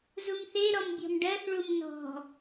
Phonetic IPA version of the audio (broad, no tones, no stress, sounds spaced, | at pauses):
z u m θ e ɾ ɔ m bʲ ɔ̤ m ɖ ɜ θ ɭ u m n ɔ̤